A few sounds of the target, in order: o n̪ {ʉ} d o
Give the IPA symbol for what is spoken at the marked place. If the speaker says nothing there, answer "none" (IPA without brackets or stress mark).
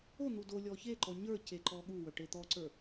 u